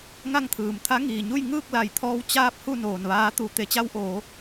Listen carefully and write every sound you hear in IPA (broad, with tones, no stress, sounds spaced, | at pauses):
ŋ a˥˨ ŋ t̪ʰ ɯː˩ m t̪ʰ a˧˥ ŋ iː˩ ɲ u˥˨ j ŋ ɯː˥˨ k̚ l a˧˩ j t̪ʰ ɔː˧ w t͡ɕ aː˧ p̚ h u˥˨ n oː˩ n ʋ aː˧ t̪ u˧˩ t̪ e˩˧ t͡ɕ a˧ w ʔ oː˩˧